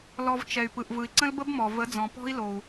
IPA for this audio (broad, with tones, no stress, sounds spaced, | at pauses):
l ɔ˧ v t͡ʃ ɛ˨ y̯ p ɯ˨ ʔ v ɯ˨ i̯ ǀ ə̃˦ l b ə˦ b m ɔ˨ v ə˨˦ d͡z ɔ̃˨ p ɔ̤˦ i̯ l o˨ u̯